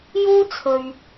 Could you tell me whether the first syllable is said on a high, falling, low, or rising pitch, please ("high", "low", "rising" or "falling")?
high